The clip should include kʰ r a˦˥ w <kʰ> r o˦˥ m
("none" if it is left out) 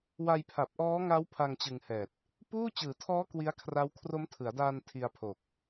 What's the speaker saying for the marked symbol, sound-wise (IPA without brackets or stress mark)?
kʰ